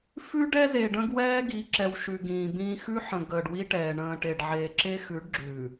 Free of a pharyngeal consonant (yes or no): no